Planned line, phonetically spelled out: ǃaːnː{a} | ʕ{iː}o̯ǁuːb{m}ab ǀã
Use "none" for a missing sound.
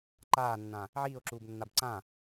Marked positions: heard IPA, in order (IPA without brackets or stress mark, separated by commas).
ã, iː, nː